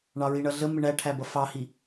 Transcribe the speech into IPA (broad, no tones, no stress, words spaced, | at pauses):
ɳɑɹiɳʌɮə mɪɳæʈʰæbʌ fɑhi